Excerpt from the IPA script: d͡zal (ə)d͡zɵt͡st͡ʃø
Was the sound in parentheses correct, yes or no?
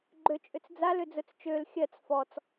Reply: no